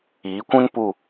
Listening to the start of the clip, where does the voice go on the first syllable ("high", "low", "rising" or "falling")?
rising